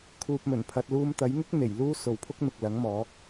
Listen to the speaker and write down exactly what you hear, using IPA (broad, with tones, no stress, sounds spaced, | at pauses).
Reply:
kʰ uː˧ p̚ m ɵ˨˩ n pʰ ɐ˧ t̚ l uː˧ m t̪ ɐ˨˥ j ŋ ɪ˥ k̚ n̪ e˨˩ j l uː˥ s o˨ w pʰ ʊ˥ k̚ n̪ ʊ˨ k̚ l ɐ˨˥ ŋ m ɔː˨˥ k̚